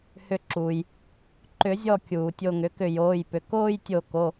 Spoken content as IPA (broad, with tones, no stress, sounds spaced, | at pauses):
h ʏ˧˩ ǁ uː˩ j | ǃ ʏ˨˩˦ zʲ ɔ˧˩ kʲ uː˩ tʲ o˧˩ ŋ ʏ˩˥ k ʏ˧˩ j oː˩˧˩ j p ʏ˩ k oː˥˧ j tʲ o˧˩ k o˩˧˩